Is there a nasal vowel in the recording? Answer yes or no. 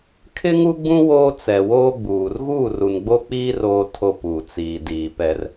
yes